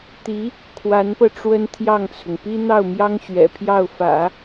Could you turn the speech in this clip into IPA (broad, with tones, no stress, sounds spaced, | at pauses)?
t̪ i˧˥ | kʰ w a˧˥ n p ɤ˧ ʈ͡ʂ w ə˥ n t̪ʰ j ɑ˥˩ ŋ t͡sʰ ʊ˩ ŋ p i˥ n̪ ɑ˥˩ ʊ̯ m j ɑ˥ ŋ ɕ ɥ ɛ̰˨˩ pʰ j ɑ˥˩ ʊ̯ f ä̰˨˩˦